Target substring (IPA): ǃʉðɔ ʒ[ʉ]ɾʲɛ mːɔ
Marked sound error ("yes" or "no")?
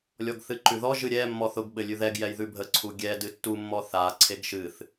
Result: yes